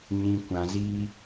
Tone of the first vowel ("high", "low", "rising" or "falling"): low